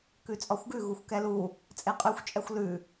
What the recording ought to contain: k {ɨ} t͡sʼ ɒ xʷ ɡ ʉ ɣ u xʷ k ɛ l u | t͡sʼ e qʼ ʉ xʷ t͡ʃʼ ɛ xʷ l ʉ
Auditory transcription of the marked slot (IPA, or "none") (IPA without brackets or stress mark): ʉ